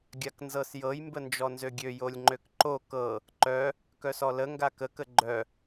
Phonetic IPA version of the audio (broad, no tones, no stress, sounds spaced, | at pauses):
ɡʲ a k n z ɤ s j ɤ j m b ə n d͡ʒ ɔ n z ø ɡʲ ø j o lʲ ŋ͡ǃ ø k ǃ o k ɤ | ǃ œ | k œ s ɔ l ə ŋ ɡ a k ə k ə ɡ͡ǃ œ